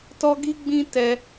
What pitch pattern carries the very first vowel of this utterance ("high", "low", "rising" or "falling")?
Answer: high